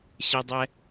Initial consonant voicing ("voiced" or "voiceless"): voiceless